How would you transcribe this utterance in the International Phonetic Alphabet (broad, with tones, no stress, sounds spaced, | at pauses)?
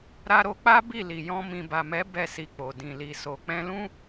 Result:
ɾ a˧ ɾ o˧ k͡p a˦ b i˦˨ l i˨ j ɔ̃˧ m ĩ˨ b a˨ m ɛ˨˦ b ɛ˦˨ s i˧ k͡p o˨ d ĩ˨ l i˨ s o˨ k͡p ɛ̃˧ l ũ˦